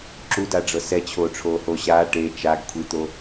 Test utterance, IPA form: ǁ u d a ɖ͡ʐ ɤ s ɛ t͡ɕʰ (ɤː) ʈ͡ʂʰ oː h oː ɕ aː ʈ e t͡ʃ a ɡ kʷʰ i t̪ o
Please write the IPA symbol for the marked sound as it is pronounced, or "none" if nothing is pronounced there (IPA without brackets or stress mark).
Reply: oː